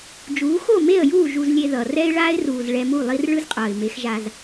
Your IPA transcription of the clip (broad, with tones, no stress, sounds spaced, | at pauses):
d͡ʒ uː˨˦ x o˦˨ m e˦˨ ə̯ j uː˦˨ ʒ u˧ z lʲ e˧ ð ʌ˨ r ɛ˦ ɪ̯ ɭ aː˦ ɪ̯ r uː˨ z ɭ ɛ˧ m u˦˨ lˠ i˦ r ɭ ɯ˦ z qʼ ʌː˨ ɪ̯ m e˨˦ x ʒ a˧ z